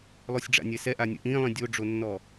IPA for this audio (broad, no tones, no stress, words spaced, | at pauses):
lˠosʲɖ͡ʐa̰nʲɛsɛ ʔanʲə̰ʔĩːlˠĩ dʲoɖ͡ʐonːɔ